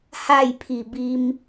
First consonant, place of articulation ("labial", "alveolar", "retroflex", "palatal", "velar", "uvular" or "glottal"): glottal